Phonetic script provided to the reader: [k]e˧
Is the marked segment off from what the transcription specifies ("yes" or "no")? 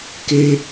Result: no